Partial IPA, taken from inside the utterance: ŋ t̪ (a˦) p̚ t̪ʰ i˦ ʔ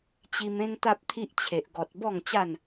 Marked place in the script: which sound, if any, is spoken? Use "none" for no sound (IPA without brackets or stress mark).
a˦